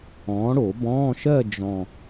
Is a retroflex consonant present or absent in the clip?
present